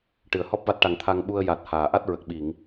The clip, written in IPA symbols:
ʈɨ˨˩˨ə̯ hɔ˦˥p̚va˦˥t̚ʈa˨˩ŋ t̪ʰa˧ŋɓu˧ə̯ ja˨˩t̚ haː˨˩˨ ʔa˦˥t̚ɹə˨˩k̚ɓi˨˩˨ŋ

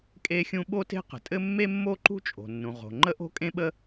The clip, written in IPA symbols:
kʼe˥xʲũ˥ ɓo˥te̤˥qə̤˩tʼɘ˥ mːe˥mːo˥ǃṳ˥ t͡ʃʼo̤˩nːũ˩ ʁo̤˩ ŋ͡ǃə˥ʔo̤˥kʼẽ˥ɓə˥

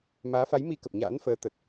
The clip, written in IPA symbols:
maː˨˦fa˨˦jmi˧ kə˨˩p̚ɲa̰ː˧˥nfəː˨˦ t̪ə˨˩t̚

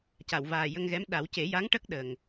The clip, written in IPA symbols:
ca˨˩˨wvaː˨˩jə˧ŋɣɛ˧˥m ɗa˨˩˦wce˨˩˦ja˧˥ŋʈə˦˥k̚ ɗə˨˩ŋ

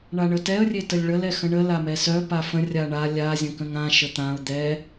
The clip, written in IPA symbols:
ɳaɳətɛə̯ rʲetəlʲɭəl ɛxə̃ɳə lamɛsœ pafə̃ rʲaɳa lʲa zʲə̃kə̃ŋã ʃət̪ãʊ̯ d̪ɛ

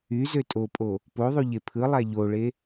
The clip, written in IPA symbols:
y zøtʼopʼo | poðˤu ʎepʰɯlˠæ ʎoɭe

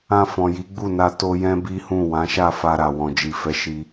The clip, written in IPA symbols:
ã˧fɔ̃˨ji˨˦ ɡ͡bu˦˨na˧ to˧jɛ̃˦bi˦hũ˦˨ wã˨˦ʃa˦˨fa˧ɾa˨ wɔ̃˨d͡ʒi˨fɛ˨˦ ʃi˦

